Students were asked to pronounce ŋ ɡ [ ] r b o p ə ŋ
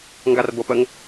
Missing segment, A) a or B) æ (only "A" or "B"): A